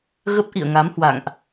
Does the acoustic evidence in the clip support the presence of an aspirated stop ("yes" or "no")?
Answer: no